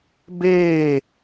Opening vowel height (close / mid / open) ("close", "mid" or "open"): mid